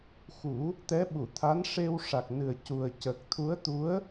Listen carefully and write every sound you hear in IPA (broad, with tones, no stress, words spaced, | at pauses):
xu˨˩˦ | t̪ɛ˧˥ɓu˨˩˨t̪ʰa˧˥nʂe˧w ʂa˨˩k̚nɨ˨˩ə̯ cu˨˩ə̯ cə˨˩k̚t̪ʰu˧˥ə̯t̪u˧˥ə̯